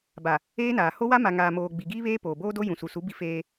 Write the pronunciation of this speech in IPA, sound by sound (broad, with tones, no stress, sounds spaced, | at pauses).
b a˨ | eː˦ n aː˨ h o˦ w a˦ m a˨ ŋ aː˨ m oː˨ ɡ͡b i˨ ɡ iː˦ β eː˦ p oː˨ b oː˦ d o˦ j ũ˨ s u˨ s u˨˦ b i˦ f eː˦